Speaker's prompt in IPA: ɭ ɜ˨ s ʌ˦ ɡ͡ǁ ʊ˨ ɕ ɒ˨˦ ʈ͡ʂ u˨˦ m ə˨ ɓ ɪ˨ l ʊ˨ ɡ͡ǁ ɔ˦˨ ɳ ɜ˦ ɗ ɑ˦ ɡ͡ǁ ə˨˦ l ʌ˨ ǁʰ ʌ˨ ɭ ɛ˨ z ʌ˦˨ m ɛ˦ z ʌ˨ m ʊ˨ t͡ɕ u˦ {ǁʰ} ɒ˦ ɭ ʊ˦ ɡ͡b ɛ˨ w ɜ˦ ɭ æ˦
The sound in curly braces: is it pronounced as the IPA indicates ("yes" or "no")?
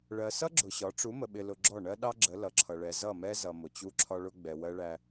yes